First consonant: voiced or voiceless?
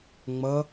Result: voiced